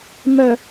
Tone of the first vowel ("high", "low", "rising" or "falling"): low